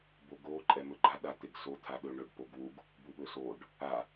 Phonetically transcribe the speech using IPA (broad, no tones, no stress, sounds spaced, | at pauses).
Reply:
b o ɡ o ǃʼ ɛ m ɵ ɡ͡ǃ a ɗ a t̪ e ɡ s o t̪ʰ a ɗ ɵ ɳ ɵ ɖ p o ɡ w u ɡ | b u ɓ ɵ s o ɖ | a